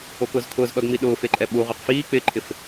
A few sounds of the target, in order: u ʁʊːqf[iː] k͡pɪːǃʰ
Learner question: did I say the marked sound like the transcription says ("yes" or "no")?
yes